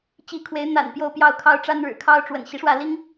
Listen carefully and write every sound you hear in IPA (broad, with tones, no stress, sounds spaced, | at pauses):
t͡ɕ i˨˦ kʰ w e˨˦ ɪ̯ n̪ a̰˨˩ n p j o˥˨ ʊ̯ p j ɑ˥˨ ʊ̯ kʰ ɑ˦ ʊ̯ ʈ͡ʂ a˦ n ɻ ɻ̩˨˩ kʰ ɑ˦ ʊ̯ ʈ͡ʂ w ə̰˨˩ n ɕ i˦ ʂ w ä˥˨ l i˦ ŋ